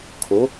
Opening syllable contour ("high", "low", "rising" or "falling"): rising